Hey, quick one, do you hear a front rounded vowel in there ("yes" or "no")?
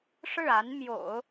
no